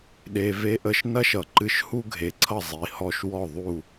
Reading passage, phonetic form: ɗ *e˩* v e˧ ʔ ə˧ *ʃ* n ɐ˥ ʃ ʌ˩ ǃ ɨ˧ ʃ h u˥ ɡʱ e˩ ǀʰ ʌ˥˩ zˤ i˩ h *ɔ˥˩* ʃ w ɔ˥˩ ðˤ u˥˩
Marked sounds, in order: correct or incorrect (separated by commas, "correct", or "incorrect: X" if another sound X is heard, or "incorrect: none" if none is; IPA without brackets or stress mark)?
correct, correct, correct